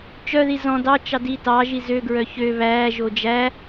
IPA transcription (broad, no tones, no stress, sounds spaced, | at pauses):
t͡ʃ œ ð i z ɔ̃ d ɑ t͡ʃ ɑ d i t ɑ ʒ i z ø ɡ ɹ œ ç ø β æː ʒ o d͡ʒ æ